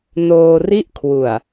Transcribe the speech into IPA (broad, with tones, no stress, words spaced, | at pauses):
noː˧ri˥˩ʔkʰwu˨˩a̯